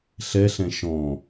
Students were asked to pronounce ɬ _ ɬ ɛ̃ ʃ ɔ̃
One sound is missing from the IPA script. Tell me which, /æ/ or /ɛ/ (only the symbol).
ɛ